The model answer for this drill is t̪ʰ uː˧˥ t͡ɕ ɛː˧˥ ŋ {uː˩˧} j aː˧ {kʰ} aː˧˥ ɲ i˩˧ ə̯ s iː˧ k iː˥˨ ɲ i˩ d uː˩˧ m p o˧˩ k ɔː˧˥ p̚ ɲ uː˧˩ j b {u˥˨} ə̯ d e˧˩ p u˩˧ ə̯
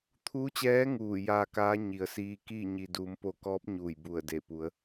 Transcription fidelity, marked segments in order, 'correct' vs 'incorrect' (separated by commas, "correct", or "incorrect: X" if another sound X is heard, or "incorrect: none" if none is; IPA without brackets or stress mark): incorrect: uː˧˩, incorrect: k, incorrect: u˧˩